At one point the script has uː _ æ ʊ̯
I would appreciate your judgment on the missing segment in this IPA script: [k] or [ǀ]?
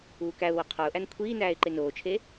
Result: k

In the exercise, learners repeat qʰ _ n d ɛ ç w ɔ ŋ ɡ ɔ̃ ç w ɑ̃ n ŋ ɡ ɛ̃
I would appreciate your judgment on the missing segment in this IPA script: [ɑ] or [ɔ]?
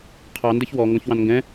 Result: ɑ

